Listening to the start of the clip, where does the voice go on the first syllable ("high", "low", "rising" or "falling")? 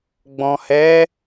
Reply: low